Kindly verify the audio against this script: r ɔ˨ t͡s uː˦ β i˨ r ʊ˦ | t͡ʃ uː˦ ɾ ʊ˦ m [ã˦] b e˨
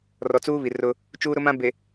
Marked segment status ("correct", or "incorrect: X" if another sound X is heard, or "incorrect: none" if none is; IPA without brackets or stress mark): correct